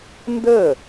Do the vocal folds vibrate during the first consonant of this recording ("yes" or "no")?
yes